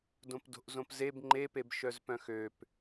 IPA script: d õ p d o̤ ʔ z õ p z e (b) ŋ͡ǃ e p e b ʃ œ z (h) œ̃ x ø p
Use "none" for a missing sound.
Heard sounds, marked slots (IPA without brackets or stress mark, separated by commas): b, p